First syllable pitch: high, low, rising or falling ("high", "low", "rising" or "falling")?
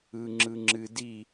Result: low